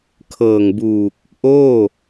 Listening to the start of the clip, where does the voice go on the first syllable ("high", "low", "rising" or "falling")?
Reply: low